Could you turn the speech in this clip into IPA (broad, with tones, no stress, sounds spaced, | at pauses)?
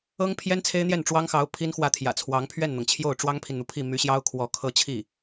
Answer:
ɤ˥ ŋ pʰ j ɛ˥ n t͡sʰ e˥ ɪ̯ n̪ j ɛ˥˩ n ʈ͡ʂ w ɑ˥ ŋ x ɑ˧˥ ʊ̯ pʰ i˥ n x w ä˥˩ t̪ʰ j ä̰˨˩ t͡sʰ w ɑ˧˥ ŋ pʰ ɥ ɛ˥˩ n n̪ ɤ˩ ŋ t͡ɕʰ j o˥˩ ʊ̯ ʈ͡ʂ w ɑ˥ ŋ pʰ i˨ n n̪ u˩ pʰ i˥˩ m y˧˥ ɕ j ɑ˥ ʊ̯ kʰ w ɔ˧˥ kʰ ɤ˥ t͡ɕʰ i˥˩